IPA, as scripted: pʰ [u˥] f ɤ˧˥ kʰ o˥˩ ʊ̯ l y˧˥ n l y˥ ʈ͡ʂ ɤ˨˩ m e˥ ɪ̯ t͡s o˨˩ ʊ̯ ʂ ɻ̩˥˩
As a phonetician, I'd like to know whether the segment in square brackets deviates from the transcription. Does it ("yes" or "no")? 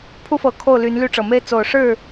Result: no